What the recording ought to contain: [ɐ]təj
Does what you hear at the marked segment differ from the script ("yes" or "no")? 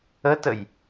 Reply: yes